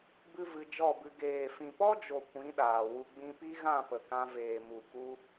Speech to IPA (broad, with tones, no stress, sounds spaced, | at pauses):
b ɨ˦ v ɨ˧ d͡ʒ ɔ˦˨ b ɨ˧ ɡ eː˨ f ĩ˨ p ɔ˦ d͡ʒ o˨ kʷ ĩ˨˦ ɗ aː˨ w u˧ ɡ͡b ĩ˧ p i˦ ɣ ã˦˨ p ə˨ k ã˧ v eː˨ m u˨ k u˧